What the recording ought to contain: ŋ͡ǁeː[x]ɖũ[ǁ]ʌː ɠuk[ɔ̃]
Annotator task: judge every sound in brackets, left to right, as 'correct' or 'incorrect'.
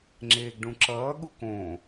incorrect: ɡ, correct, incorrect: õ

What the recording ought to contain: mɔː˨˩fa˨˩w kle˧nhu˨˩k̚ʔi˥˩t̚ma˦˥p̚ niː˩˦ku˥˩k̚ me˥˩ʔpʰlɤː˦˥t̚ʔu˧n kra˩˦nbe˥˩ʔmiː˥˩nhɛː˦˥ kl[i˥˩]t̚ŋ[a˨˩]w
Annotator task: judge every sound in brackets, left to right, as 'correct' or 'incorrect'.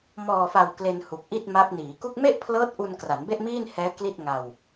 correct, incorrect: a˧

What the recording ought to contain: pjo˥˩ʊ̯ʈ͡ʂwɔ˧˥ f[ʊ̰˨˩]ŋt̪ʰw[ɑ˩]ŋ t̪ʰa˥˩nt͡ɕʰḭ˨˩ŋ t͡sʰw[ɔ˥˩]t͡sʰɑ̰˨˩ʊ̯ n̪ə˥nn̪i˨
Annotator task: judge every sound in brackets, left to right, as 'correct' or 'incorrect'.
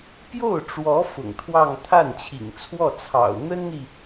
correct, incorrect: ɑ˥˧, correct

